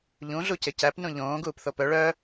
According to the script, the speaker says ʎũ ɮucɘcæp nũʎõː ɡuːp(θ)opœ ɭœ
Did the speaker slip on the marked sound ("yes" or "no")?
no